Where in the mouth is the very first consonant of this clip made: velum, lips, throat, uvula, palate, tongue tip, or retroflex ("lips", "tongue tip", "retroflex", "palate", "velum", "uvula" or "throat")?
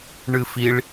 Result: retroflex